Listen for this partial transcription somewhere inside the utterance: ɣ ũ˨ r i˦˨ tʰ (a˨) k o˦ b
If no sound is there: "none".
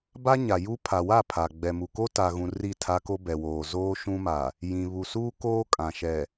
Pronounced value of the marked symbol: a˦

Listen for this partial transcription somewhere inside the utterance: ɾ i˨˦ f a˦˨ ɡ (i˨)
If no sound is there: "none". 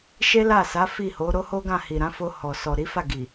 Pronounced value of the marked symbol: i˨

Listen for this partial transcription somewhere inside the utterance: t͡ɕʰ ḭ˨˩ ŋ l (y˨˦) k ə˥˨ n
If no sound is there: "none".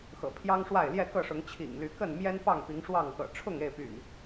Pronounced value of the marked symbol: y˨˦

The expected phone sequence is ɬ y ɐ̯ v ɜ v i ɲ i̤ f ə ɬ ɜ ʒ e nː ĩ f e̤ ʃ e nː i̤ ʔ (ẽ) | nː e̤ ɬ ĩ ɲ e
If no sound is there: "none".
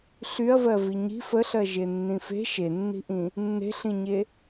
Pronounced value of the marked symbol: ĩ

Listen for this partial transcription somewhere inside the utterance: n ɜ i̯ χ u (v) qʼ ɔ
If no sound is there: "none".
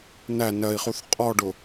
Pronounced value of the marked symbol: θ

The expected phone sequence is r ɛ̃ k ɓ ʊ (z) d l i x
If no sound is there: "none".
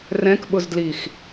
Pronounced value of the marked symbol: z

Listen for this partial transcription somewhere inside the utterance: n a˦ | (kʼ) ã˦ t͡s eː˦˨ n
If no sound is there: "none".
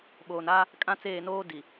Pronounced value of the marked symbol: kʼ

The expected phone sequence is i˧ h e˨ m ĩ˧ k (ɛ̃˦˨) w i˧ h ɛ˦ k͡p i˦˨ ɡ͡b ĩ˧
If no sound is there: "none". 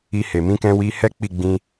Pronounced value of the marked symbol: ɛ̃˧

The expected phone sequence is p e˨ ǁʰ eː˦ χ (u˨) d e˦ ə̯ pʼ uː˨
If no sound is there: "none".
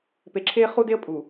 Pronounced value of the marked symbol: u˦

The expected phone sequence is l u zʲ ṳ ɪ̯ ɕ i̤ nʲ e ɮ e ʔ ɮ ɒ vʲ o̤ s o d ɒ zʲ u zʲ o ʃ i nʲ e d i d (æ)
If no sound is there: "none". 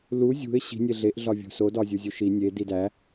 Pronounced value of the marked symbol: æ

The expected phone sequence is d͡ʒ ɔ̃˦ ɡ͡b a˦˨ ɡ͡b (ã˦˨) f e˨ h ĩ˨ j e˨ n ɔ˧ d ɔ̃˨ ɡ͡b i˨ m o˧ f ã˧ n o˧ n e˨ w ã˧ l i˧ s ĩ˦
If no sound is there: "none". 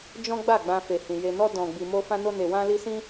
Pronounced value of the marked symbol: ã˧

